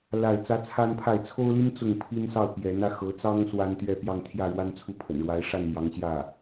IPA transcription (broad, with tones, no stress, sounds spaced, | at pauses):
l a˥˩ ɪ̯ t͡s ä˥ t͡sʰ a˥ n pʰ a˥˩ ɪ̯ t͡sʰ o˥ ʊ̯ l i˥ n t͡s ʊ˥˩ ŋ pʰ i˥ n s ɑ˥˩ ʊ̯ p j ɛ˧˥ n ä˧ x ɤ˧˥ t͡s ɑ˥ ŋ s w a˥ n t̪ ɥ ɛ˥˧ p j ɑ˥˧ ŋ t̪ʰ j ä˥˩ ɻ w a˥ n t͡sʰ u˥˩ pʰ ə̰˨˩ n ɻ w a˧˥ ɪ̯ ʂ a˥˩ n m j ɑ˧˥ ŋ ɕ j ä˥˩